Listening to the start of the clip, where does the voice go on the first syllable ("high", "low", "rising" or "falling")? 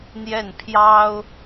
falling